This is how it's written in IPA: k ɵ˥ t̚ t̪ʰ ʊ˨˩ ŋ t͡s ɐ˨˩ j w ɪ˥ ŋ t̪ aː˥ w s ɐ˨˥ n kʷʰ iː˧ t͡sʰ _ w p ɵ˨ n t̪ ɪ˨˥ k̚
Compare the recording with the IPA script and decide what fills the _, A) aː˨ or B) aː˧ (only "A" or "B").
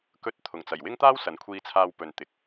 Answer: B